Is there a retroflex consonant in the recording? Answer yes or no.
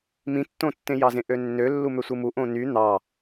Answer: no